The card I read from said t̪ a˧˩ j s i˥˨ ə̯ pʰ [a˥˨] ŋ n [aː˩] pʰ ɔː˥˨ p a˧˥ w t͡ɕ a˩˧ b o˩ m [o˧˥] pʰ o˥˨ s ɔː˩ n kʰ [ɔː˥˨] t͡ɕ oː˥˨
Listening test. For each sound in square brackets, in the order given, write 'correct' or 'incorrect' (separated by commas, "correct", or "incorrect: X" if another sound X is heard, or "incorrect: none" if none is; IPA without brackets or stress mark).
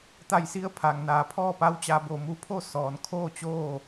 incorrect: a˩, correct, incorrect: u˧˥, incorrect: oː˥˨